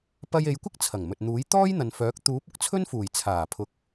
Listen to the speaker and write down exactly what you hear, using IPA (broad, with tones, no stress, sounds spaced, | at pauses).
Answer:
p ɐ˧ j e˨˧ j kʷ ɪ˥ k̚ t͡sʰ ɐ˨˩ ŋ m ɵ˨ t̚ n̪ uː˨˥ j t̪ ɔː˥ j n̪ ɐ˨ n f œː˨˥ k̚ t̪ uː˨˥ p̚ ʊ˧ k̚ t͡sʰ ɵ˥ n f uː˨˩ j t͡sʰ aː˨˩ pʰ ʊ˨ k̚